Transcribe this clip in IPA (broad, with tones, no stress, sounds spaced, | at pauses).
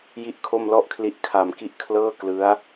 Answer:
j i˥˩ ʔ kʰ o˥˩ m l ɔ˥˩ ʔ kʰ l i˦˥ ʔ kʰ a˨˩ m k i˦˥ ʔ kʰ l ɤː˥˩ k l ɯ˦˥ a̯